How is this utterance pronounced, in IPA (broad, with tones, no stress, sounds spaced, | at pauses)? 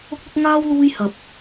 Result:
ʊ˧ k̚ l ʊ˧ k̚ ŋ aː˥ w l uː˧ j h ɐ˨ p̚